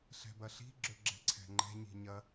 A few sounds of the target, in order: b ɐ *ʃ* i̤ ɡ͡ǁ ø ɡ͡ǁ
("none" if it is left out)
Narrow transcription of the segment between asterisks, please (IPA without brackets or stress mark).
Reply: ɬ